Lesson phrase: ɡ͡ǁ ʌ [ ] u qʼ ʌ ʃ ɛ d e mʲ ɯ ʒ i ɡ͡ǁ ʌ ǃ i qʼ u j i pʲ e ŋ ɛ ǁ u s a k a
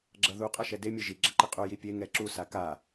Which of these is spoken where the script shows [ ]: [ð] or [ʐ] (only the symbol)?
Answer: ð